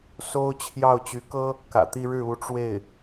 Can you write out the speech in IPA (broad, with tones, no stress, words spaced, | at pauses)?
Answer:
so˥ʊ̯ t͡ɕʰjɑ˥˩ʊ̯t͡ɕy˧˥kɤ˥ | kä̰˨˩t̪i˥˧ɻɻ̩˥˩ u˧˥ʈ͡ʂwe˥˩ɪ̯